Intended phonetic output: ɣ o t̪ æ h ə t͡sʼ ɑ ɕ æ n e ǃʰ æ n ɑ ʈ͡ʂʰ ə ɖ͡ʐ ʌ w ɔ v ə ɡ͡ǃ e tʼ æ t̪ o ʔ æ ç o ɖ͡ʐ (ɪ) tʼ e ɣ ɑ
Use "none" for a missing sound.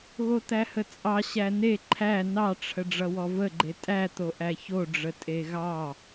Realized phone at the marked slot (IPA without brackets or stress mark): ə